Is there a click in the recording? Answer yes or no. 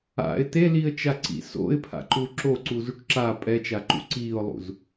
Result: yes